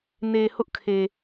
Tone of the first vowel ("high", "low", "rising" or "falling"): low